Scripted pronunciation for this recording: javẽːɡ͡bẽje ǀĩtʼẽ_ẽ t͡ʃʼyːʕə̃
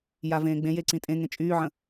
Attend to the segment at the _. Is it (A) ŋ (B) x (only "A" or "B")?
A